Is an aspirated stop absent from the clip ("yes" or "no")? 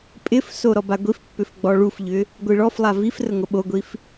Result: yes